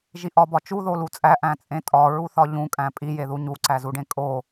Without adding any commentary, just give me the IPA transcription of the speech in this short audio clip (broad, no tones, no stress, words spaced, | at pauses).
ʒiʔɒbɒ t͡ʃu ðolut͡sʼæ ʔæ̃t͡sʼẽtʼɒ ɹuθɒʎũkʼæ̃ pʼijeðu ɲuǀæzuɖẽ kʼo